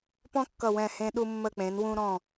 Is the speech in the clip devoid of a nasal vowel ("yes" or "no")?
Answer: no